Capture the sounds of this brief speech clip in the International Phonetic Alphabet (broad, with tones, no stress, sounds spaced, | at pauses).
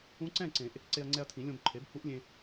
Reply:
ũ˧˥ ǀ ɛ̃˥˨ ǀ ẽ˨˩˦ ʔ | ǀ e˧ ɐ̯ ŋ͡ǀ ɛ˧ ɐ̯ tʰ ĩ˨˩˦ lʲ õ˧ b ǃʰ e˩˥ b h u˧˥ ʔ lʲ ẽ˧